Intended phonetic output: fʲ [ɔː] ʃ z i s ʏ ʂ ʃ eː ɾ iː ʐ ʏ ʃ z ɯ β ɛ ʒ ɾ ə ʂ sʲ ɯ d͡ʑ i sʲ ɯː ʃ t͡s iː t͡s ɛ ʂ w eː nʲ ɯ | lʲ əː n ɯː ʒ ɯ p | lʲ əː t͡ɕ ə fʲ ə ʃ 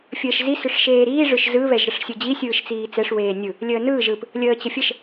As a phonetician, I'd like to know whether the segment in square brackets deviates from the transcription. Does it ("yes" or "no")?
yes